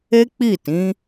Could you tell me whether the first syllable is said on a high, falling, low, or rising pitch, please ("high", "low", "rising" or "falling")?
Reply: high